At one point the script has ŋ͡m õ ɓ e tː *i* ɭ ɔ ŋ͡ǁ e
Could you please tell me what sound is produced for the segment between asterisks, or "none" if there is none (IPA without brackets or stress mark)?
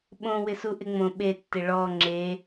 ɪ